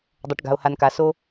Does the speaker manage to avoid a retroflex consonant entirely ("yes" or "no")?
no